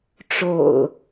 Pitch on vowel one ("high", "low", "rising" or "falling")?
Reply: low